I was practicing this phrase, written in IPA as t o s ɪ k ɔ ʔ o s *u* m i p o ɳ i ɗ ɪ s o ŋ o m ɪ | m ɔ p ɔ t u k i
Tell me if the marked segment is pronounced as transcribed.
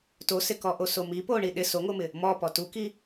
no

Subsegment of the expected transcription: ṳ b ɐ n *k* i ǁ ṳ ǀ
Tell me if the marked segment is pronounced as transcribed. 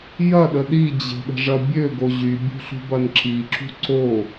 no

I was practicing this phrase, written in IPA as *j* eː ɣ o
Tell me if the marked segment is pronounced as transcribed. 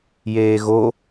yes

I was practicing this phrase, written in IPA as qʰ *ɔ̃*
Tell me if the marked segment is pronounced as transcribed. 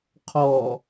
no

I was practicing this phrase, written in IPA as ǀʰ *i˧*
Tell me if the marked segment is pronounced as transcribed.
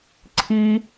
yes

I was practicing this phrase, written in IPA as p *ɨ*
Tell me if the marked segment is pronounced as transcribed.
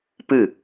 yes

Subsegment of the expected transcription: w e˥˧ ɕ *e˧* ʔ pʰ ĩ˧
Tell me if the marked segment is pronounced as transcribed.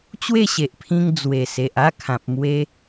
no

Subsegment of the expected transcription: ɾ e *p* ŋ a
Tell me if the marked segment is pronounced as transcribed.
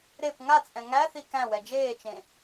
yes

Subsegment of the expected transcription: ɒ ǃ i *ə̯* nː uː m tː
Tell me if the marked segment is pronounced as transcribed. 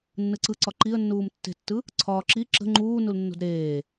yes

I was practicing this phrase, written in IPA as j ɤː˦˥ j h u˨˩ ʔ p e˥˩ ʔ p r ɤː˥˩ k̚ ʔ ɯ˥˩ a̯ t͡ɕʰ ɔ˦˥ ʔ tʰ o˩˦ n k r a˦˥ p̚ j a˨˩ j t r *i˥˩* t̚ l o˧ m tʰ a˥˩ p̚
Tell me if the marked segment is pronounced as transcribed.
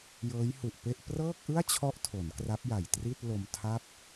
yes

